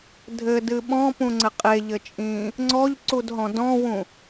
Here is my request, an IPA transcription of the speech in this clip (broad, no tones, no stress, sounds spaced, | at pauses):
dʱ ɘ d ɨ ɓ ɔ̃ p ũ ŋ͡ǀ ɘ qʼ e ʎ ɘ t͡ʃʼ ĩː | ŋ͡ǀ ɔ ʎ ǀ u d ɦ ɔ̃ d ɔ̃ w ũ